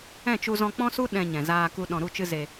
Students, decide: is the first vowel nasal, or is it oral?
nasal